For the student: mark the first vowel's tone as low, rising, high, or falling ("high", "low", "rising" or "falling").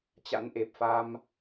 rising